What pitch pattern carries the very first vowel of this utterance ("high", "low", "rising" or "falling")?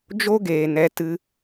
high